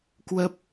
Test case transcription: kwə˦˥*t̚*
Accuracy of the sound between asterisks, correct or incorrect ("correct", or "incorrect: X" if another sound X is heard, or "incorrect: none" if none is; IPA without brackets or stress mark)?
incorrect: p̚